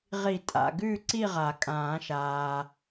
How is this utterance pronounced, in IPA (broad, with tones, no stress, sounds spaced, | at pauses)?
ʁ i˨˩˦ tʼ a̰˨ ɡ ʉː˥˨ ǀ i˥˨ ʁ a˨˩˦ kʼ ãː˨˩˦ ʃ aː˨